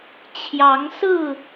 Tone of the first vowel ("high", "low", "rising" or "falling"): rising